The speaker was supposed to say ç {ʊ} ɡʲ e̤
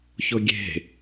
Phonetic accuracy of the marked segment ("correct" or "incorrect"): correct